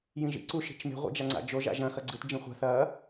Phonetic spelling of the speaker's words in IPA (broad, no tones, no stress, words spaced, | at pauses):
jĩʒḭ ǀu ʃi̤t͡ʃme̤ ʁʷḭd͡ʒaŋ͡ǀa̰d͡ʒo ʒa̰ʒɐ̃ xɐɡ͡ǀɨt d͡ʒĩχʷa̤ θɐ